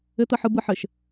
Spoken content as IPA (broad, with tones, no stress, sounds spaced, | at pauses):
ɘ˦ t̪ ə˦˨ ħ ɯ˦ b ɯ˦ ħ ɘ˨ ʃ